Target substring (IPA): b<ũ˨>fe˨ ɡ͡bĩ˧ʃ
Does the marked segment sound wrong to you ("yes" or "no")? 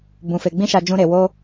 no